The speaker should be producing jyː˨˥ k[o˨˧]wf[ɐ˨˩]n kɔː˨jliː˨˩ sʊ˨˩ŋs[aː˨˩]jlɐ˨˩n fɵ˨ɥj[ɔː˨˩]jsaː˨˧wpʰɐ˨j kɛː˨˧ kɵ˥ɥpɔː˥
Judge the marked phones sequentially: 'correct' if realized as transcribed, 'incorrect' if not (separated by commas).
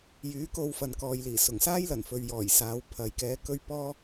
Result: incorrect, incorrect, incorrect, correct